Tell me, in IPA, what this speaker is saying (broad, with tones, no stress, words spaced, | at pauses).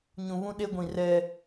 ɲũ˨βũ˦ɗe˦ɡʷĩ˨ rɛ˦